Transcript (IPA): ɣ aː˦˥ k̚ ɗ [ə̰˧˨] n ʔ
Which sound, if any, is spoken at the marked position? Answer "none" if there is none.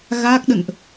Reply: ə̰˧˨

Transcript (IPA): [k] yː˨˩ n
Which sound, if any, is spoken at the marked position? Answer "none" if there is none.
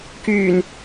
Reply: k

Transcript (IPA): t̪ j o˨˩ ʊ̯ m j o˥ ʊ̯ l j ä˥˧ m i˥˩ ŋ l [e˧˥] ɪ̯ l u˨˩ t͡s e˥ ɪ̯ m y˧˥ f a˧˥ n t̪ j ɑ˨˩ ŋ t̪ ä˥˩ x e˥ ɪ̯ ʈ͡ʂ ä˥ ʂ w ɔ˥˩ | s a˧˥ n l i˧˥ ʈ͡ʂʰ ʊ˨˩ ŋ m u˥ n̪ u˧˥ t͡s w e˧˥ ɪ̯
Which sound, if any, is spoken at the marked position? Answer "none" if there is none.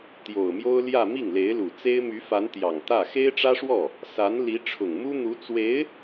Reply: e˧˥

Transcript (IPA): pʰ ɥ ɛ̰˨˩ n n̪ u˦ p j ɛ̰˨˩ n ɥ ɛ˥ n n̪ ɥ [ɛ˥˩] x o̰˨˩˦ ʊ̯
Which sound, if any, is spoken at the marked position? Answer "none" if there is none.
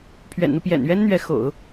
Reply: ɛ˧˥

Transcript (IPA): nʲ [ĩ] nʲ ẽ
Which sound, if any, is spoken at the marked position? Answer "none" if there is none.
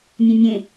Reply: ẽ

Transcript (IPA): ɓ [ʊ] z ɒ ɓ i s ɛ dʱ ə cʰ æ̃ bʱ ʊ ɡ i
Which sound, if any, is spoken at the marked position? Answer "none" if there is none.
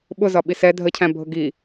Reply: ʊ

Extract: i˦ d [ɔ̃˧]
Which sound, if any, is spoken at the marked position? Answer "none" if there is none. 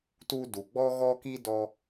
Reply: ɔ˧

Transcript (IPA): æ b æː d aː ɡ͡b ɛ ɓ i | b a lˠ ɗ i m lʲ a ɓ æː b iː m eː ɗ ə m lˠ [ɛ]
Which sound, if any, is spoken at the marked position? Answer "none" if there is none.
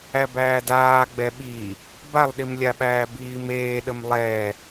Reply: ɛ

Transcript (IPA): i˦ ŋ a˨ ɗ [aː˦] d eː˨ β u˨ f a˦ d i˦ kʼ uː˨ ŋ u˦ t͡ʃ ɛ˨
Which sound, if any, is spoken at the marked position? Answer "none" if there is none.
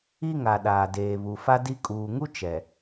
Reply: aː˨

